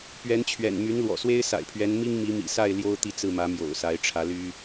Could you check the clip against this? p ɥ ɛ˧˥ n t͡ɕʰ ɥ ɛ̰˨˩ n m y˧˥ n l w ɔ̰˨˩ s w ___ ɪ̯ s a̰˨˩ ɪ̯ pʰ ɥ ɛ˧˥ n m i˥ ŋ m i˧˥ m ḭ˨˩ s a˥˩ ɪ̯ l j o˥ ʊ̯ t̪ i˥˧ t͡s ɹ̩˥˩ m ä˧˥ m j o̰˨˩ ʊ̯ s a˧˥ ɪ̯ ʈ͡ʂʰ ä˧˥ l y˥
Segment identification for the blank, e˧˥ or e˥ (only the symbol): e˥